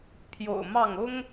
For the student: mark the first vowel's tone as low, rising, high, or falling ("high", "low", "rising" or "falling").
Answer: low